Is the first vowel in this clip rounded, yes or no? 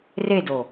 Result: no